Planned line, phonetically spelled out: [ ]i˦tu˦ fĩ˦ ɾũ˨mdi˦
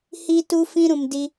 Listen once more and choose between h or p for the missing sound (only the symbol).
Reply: h